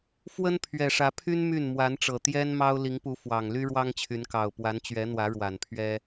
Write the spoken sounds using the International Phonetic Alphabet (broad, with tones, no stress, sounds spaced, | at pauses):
f w ə˦ n pʰ ɥ ɛ˨˩ ʂ ä˨˦ pʰ y˦ n m y˥˨ n m w a˨˦ n ʈ͡ʂ ɤ˨˩ t̪ j ɛ˦ n m ɑ˦ ʊ̯ l i˨˦ ŋ p u˨˦ f w ɑ˨˩ ŋ l y˦ ɻ w ɑ˦ ŋ t͡ɕʰ y˨˦ n k ɑ˨˩ ʊ̯ p w a˨˦ n t͡ɕ ɥ ɛ˨˦ n̪ w ä˨˦ ɻ w a˨˩ n pʰ ɥ ɛ˦